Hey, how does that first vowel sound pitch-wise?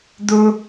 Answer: high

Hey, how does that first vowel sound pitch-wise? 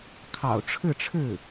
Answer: low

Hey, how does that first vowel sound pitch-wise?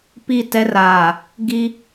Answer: falling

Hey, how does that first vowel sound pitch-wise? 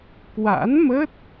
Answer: rising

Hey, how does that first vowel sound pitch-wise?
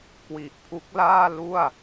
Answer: low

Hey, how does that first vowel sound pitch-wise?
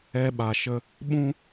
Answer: high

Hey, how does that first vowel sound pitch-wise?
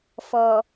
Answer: low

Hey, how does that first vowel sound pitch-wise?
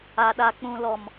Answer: low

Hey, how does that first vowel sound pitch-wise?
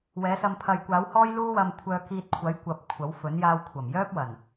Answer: rising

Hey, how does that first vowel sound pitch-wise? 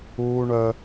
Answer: high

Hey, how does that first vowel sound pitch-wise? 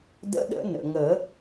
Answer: rising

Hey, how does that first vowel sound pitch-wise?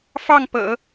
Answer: falling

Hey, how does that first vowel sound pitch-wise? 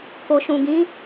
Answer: low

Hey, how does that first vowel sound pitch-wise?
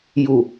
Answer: low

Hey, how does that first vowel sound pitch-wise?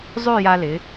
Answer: falling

